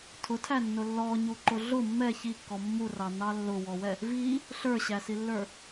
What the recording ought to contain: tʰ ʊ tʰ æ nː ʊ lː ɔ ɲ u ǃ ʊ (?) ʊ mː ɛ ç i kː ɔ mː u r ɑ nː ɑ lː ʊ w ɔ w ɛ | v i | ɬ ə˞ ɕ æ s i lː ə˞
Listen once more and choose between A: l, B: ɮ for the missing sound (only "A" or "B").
B